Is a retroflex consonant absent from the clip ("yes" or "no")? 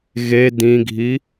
yes